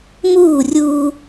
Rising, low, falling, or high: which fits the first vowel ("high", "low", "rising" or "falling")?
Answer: falling